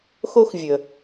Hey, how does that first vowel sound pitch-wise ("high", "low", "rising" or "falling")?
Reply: high